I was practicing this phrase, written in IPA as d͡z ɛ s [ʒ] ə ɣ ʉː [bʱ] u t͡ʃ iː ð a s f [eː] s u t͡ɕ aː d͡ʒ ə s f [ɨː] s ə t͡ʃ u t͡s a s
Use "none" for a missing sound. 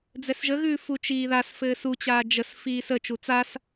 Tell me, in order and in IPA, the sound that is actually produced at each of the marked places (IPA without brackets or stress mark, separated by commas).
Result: ʒ, f, ɘː, iː